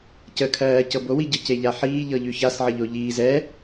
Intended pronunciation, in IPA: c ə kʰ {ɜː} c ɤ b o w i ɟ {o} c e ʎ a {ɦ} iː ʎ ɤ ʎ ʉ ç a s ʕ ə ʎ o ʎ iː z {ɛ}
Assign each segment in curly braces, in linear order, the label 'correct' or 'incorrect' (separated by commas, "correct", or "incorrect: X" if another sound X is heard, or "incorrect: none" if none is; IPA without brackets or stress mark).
correct, incorrect: ɤ, incorrect: ħ, correct